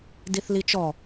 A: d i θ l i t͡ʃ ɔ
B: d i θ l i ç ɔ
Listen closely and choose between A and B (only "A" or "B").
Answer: A